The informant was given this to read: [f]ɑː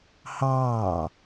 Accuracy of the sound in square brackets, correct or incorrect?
incorrect